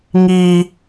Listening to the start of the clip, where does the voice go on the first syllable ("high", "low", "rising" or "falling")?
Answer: high